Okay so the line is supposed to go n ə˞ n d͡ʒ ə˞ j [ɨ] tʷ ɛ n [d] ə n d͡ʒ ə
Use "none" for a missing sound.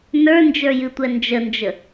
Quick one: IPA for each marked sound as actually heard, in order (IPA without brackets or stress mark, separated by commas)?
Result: ɨ, d͡ʒ